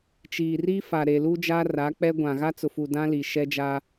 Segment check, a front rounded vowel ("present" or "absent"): absent